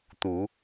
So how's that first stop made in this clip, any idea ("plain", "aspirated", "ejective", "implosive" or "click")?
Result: plain